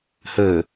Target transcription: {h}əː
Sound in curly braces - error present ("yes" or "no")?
no